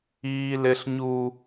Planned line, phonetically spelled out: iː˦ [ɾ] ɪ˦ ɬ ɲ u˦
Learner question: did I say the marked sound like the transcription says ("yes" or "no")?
no